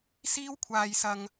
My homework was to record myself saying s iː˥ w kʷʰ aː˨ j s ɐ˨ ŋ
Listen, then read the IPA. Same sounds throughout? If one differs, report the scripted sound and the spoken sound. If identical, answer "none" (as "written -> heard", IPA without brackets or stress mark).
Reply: none